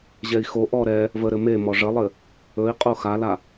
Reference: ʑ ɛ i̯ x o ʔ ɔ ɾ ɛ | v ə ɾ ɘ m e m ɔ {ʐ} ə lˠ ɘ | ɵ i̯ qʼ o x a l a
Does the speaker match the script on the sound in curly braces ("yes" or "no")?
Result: yes